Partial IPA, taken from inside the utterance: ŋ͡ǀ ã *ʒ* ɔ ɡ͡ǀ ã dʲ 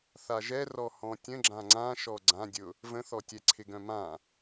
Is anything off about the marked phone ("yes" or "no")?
yes